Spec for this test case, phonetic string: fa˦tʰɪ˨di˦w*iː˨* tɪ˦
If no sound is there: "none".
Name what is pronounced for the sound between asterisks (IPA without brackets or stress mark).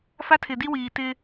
iː˨